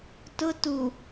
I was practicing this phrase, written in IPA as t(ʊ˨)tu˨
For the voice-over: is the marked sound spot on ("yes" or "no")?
no